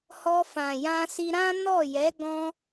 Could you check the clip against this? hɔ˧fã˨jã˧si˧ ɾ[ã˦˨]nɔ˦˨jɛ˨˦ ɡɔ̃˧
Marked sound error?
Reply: yes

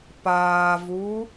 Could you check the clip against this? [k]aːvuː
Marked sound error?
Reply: yes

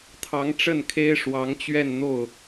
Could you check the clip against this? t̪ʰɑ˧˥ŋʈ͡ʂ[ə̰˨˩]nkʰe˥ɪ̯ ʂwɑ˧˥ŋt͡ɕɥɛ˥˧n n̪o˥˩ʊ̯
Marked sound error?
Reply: yes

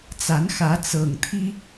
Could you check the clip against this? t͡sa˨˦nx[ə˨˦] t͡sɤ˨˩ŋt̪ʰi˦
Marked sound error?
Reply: yes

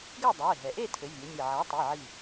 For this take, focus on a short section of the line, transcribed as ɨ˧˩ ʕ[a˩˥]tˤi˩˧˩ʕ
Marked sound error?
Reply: no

